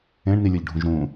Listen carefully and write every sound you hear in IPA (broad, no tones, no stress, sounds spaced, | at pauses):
ẽ ɳ n i lʲ ɤ ʎ ɖʱ ũ ʒ ɾ ũ